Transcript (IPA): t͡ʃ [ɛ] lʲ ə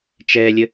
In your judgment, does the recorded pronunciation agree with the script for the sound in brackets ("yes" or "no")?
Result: yes